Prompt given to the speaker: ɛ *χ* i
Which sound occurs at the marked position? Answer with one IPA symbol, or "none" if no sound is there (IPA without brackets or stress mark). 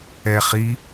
χ